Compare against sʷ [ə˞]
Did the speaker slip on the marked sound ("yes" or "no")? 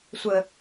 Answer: yes